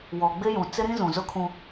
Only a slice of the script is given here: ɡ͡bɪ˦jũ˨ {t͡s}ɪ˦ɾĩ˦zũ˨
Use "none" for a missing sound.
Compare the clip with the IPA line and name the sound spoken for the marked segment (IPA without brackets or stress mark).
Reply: t͡s